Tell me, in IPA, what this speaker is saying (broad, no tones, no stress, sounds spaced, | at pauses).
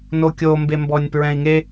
n o kʲ o m b e m b ɔ nʲ p ɹ ɛ̃ i̯ ŋ e